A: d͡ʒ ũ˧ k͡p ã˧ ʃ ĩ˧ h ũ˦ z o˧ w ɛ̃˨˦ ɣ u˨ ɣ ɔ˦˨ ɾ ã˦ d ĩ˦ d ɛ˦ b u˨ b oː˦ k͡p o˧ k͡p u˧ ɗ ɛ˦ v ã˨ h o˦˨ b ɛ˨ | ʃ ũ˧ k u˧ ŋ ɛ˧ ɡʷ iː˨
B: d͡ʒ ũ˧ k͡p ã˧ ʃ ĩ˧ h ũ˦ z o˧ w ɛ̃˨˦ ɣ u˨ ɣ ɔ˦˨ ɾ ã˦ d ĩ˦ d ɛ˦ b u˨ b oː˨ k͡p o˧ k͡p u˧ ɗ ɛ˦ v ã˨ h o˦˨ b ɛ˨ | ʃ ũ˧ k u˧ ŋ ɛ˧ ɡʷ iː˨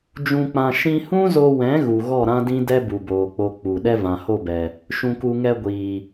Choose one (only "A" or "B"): B